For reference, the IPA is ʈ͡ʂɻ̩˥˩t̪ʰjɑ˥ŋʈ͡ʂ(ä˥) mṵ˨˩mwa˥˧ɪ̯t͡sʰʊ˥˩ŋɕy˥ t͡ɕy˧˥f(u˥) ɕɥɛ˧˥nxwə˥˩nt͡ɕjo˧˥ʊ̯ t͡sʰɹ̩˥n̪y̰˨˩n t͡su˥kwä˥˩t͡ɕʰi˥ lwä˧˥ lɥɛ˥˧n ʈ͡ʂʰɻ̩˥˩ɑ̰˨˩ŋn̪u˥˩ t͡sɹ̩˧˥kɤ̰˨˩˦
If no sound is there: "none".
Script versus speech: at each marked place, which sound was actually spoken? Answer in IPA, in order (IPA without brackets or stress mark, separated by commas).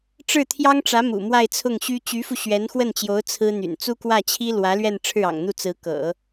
ä˧˥, u˧